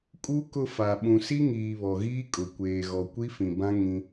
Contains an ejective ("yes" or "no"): yes